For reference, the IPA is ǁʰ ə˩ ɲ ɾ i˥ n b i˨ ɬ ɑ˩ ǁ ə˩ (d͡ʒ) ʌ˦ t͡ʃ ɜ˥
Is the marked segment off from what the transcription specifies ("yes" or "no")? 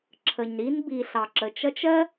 yes